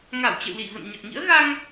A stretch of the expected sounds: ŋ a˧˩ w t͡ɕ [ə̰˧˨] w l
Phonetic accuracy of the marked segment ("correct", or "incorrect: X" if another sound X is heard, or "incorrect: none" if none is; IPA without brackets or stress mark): correct